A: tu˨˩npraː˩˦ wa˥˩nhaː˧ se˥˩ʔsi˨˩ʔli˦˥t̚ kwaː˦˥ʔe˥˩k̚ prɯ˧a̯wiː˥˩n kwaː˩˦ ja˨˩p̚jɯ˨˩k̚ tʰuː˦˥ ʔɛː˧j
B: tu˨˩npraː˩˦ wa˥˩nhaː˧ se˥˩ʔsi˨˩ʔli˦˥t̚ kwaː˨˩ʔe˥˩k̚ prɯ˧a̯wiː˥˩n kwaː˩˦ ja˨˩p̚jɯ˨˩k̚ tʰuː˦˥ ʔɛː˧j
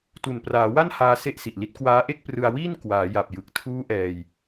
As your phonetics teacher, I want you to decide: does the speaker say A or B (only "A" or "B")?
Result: A